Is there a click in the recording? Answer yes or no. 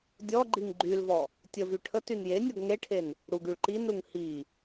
yes